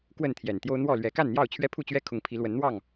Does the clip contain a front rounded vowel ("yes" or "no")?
no